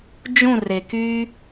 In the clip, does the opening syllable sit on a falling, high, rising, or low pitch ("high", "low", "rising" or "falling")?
falling